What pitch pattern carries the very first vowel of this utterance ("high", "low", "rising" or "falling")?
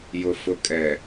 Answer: low